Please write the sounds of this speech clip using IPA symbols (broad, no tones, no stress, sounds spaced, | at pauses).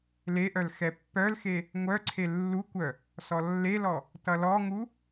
l e ʔ œ l x ɛ pː œ l x e | ŋʷ œ ǀʰ e lː u kʷ œ | s ɔ lː e l ɔ | t ʌ l ɔ ŋ u